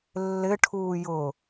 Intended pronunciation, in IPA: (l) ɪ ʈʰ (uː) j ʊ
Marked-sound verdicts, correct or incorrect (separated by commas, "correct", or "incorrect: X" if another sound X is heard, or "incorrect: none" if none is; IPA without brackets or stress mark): incorrect: lː, correct